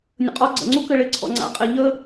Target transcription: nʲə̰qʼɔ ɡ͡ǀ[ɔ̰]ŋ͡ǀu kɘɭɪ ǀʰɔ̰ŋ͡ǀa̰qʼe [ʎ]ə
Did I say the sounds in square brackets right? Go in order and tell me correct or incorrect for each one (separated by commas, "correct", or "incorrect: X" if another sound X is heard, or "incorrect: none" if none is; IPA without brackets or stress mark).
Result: incorrect: ə̰, correct